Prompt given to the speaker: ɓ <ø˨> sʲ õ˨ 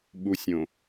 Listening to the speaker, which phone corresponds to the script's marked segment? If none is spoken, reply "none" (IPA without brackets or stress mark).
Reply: u˨